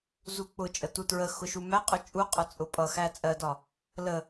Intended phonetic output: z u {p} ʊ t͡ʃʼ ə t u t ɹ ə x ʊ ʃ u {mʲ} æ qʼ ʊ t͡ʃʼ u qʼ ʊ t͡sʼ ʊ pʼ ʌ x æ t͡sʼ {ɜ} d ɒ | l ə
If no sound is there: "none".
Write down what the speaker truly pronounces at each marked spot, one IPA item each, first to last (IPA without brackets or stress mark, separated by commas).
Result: k͡p, m, ɜ